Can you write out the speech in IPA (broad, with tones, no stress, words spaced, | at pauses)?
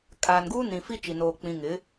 kʼaː˨nɡuː˦ nĩ˨fi˦ t͡ʃi˨noː˨ k͡pĩ˨ ŋɪ˨˦